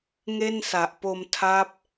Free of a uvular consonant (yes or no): yes